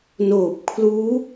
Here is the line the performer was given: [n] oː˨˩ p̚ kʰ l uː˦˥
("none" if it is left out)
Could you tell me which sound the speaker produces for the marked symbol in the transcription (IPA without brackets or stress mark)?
n